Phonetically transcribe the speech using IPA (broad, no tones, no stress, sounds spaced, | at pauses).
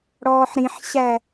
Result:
ɽ ɔː ħ ɾ ĩ ħ ɕ æ